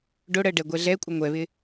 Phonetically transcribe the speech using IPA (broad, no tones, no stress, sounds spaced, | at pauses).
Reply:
ɖ o ɽ ɜ ɖ ɛ ɡʷ ɛ ɮ ɛ kʷʼ ə ŋʷ ɛ β ɪ